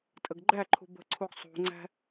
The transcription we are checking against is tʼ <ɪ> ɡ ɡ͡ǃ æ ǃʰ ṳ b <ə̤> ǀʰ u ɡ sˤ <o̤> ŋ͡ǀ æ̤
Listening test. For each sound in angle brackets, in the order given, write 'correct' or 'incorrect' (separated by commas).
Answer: incorrect, correct, incorrect